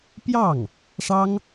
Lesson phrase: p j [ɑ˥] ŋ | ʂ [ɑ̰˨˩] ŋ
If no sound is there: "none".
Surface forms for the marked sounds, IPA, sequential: ɑ˥˩, ɑ˥

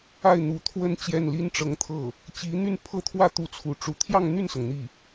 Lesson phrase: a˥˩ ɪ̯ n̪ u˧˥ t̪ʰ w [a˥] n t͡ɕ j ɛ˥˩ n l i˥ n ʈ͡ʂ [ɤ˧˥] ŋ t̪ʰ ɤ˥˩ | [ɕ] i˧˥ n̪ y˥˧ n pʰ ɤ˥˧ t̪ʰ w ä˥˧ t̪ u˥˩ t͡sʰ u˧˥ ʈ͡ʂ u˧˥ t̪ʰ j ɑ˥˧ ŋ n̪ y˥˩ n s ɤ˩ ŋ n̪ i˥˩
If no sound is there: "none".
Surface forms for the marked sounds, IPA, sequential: ə˥, ɤ˧˥, t͡ɕ

